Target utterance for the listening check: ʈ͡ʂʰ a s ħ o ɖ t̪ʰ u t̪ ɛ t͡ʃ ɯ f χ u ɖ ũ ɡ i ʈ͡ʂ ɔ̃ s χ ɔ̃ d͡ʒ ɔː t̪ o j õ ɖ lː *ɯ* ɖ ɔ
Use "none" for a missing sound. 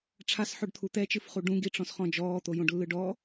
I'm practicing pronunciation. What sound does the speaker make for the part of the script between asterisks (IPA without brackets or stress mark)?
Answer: ɯ